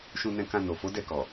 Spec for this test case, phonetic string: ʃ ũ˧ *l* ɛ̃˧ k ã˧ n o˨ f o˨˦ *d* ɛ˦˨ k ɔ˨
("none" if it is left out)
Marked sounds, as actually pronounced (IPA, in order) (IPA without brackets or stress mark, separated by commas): n, d